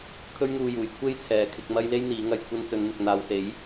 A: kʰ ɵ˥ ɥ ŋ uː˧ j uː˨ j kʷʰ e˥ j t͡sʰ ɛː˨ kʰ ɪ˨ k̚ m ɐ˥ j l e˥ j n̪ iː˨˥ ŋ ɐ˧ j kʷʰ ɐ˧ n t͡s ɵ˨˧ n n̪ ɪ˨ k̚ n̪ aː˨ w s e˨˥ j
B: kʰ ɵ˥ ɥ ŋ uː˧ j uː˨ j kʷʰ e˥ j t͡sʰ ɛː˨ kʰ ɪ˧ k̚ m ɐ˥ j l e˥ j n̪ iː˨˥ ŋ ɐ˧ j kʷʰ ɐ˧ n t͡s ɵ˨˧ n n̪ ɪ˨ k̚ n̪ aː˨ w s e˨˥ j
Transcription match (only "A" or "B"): B